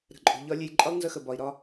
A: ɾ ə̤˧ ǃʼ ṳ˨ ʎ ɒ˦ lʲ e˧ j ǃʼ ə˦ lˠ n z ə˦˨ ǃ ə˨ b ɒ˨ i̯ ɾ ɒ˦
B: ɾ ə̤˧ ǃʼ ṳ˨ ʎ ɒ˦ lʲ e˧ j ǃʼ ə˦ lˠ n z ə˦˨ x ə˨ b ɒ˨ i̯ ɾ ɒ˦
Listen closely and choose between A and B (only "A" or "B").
B